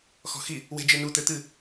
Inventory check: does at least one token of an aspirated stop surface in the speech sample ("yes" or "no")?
no